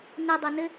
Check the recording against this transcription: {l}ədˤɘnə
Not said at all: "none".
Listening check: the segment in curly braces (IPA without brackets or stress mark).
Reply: n